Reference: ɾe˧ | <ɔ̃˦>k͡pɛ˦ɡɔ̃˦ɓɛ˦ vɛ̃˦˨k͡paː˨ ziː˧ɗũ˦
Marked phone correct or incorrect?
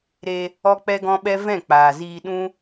incorrect